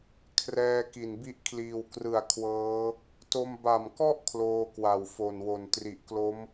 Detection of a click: absent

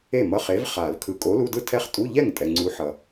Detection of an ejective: present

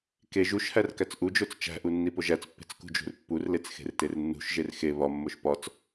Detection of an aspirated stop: absent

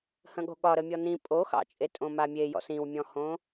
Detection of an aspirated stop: absent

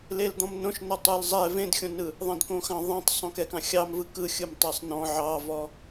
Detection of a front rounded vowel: absent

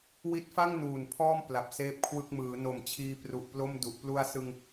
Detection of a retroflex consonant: absent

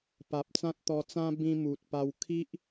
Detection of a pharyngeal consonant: absent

